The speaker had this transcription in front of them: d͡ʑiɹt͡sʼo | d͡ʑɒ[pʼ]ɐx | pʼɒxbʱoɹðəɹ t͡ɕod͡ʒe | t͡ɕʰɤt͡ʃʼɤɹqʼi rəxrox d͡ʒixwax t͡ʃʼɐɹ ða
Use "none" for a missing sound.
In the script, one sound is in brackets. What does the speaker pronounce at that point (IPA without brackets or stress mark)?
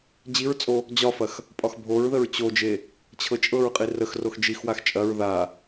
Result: f